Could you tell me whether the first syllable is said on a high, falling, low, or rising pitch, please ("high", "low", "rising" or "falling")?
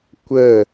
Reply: falling